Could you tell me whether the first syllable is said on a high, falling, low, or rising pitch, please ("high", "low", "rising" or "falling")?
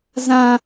high